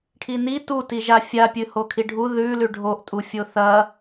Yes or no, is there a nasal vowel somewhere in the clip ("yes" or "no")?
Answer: no